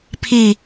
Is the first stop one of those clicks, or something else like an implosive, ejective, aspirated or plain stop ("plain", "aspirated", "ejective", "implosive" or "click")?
aspirated